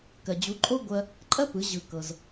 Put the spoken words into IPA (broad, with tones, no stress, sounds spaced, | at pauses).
k ɜ˩ d͡ʑ u˩˥ ǃʼ o˥ ɡʷ ɜ˧ | ǃʼ ɜ˥ p ɯ˩˥ ʑ ɯ˩ k ɤ˩ z